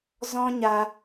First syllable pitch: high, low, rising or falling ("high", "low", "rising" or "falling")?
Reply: high